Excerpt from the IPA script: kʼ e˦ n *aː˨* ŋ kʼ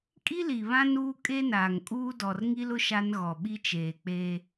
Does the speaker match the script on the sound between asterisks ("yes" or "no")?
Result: yes